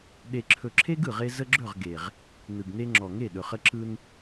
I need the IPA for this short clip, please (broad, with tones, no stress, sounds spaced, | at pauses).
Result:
ɗ e˨ ǁʰ ɵ˨ ǁʰ e˦ ɡ ɯ˨ ʁ e˦ z ə˦ ɡ͡ǁ ɵ˦˨ ʁ ɡ e˨ ʁ | n ɯ˨ ɡ n e˦ ŋ͡ǁ ɔ˨ ŋ e˦˨ ɗ ɵ˨ χ ə˦ ǁ ɯ˦ n